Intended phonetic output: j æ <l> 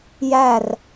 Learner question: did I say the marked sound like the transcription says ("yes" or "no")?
no